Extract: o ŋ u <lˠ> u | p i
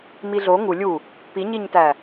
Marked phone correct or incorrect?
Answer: incorrect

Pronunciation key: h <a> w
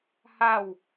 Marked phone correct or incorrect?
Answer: correct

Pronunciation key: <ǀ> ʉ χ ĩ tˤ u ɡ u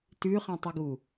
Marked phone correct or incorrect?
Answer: incorrect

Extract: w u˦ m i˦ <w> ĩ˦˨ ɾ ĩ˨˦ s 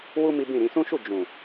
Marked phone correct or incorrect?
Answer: incorrect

